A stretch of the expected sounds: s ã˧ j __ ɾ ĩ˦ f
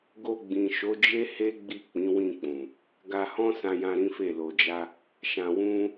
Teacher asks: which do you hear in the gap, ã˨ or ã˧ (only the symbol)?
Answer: ã˧